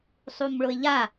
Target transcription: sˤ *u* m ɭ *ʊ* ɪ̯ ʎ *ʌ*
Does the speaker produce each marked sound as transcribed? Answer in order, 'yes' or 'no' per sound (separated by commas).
yes, yes, no